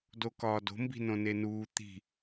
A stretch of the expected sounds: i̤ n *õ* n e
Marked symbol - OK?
yes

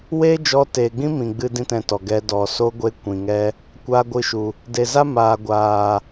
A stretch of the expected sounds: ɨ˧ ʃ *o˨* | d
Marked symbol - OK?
no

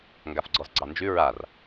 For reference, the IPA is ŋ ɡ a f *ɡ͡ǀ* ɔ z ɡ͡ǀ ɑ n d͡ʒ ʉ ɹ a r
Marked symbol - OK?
yes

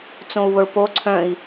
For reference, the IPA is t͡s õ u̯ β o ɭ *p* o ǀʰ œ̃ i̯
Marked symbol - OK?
yes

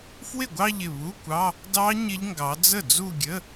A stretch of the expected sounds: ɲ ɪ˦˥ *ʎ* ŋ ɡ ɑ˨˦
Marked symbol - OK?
yes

